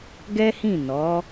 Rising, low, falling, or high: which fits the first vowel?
high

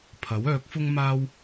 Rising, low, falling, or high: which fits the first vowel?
rising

